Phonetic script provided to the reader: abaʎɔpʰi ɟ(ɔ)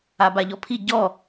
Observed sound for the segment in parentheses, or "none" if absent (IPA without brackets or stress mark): ɔ